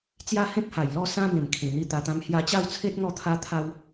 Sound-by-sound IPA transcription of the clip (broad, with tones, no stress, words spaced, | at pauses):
t͡sja˦hẽ˦k̚ha˨˩jlɔ˥˧ sã˦bẽ˨˩m kʰĩ˨˩n̪i˦t̪a˧t̪ã˦m hja˧t͡ɕa˥˧wt͡sʰe˦t̚ n̪ɔ˥˧t̪ʰa˦ t̪ʰa˦w